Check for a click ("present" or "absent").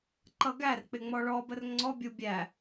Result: present